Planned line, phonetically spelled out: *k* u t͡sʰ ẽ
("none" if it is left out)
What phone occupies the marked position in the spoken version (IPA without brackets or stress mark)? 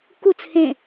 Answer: k